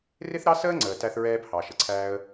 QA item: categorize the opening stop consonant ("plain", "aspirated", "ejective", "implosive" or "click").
click